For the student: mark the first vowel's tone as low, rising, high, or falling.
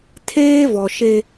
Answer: high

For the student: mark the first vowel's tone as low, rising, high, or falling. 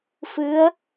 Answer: rising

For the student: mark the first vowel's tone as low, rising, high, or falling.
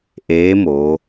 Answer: rising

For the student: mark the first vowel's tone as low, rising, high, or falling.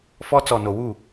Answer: high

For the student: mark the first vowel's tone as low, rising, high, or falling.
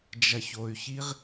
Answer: low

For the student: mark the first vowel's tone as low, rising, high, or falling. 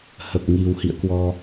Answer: low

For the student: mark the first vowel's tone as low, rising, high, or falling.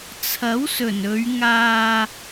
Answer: rising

